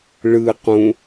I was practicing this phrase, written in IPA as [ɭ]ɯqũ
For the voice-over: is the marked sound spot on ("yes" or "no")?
yes